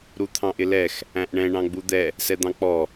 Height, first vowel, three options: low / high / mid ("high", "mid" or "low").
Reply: high